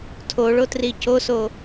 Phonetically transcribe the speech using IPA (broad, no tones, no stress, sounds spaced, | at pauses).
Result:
tʰ o ɭ o t r i c o s o